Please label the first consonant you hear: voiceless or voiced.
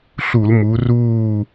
voiceless